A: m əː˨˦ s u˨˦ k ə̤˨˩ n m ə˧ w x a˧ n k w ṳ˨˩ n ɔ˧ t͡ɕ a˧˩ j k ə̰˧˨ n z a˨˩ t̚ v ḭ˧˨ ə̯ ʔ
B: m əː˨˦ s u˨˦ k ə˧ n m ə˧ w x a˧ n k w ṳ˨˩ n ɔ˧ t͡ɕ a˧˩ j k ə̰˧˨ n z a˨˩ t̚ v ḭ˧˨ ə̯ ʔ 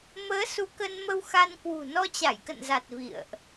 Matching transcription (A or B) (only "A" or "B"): B